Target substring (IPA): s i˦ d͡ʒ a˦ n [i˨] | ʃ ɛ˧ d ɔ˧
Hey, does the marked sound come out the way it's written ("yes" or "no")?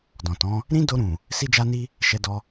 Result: no